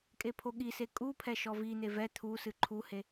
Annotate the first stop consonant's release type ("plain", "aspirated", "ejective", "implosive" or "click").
ejective